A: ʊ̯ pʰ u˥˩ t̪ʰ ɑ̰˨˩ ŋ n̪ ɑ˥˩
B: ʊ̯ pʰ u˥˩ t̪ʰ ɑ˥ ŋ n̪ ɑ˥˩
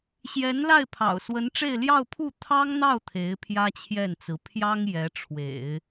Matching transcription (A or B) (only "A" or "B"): B